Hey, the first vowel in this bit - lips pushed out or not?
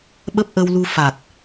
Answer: no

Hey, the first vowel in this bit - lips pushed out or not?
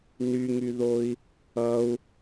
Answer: yes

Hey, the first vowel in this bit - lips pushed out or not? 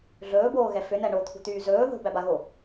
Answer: yes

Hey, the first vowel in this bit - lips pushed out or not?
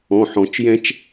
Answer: yes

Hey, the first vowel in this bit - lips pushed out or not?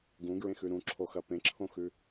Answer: yes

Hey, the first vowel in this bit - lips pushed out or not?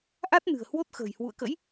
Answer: no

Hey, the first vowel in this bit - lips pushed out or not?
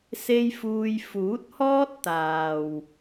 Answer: no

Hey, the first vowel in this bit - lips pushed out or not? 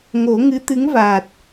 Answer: yes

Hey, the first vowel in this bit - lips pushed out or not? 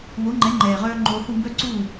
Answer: yes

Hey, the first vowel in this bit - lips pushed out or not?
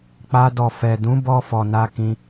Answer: no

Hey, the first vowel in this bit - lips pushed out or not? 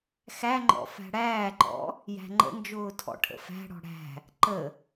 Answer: no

